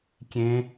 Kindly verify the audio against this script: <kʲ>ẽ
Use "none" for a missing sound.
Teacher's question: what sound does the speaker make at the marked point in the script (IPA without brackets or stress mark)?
kʲ